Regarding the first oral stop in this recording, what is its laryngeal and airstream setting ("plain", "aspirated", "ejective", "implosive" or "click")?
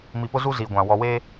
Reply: plain